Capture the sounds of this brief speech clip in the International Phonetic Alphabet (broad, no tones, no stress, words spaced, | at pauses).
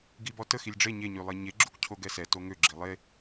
ɡibɔtə xilʲɖ͡ʐe ɲe ɲylˠeɲe ɡ͡ǁukcʰoɡɛsɛ toŋø ɡ͡ǁilˠe